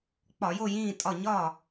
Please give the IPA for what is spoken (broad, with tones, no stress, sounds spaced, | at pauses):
k͡p ɒ˧˩˧ j o˥˨ j ĩː˥˨ tʼ ɒ˥˨ ɲ ɒ˥˨